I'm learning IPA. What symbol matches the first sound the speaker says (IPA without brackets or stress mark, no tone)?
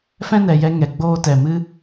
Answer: f